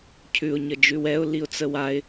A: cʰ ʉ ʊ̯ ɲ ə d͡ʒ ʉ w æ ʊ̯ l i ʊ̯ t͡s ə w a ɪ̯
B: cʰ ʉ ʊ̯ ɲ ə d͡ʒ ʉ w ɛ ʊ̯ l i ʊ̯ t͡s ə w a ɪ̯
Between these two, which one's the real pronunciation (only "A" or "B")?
B